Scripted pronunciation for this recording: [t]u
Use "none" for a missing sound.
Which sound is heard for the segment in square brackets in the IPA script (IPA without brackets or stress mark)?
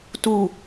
t